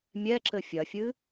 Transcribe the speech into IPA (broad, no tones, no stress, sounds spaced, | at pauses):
mʲ ɛ ǁ ɘ fʲ ɐ fʲ ɨ